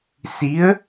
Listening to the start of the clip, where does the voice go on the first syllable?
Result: rising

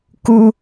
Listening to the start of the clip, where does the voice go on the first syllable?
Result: high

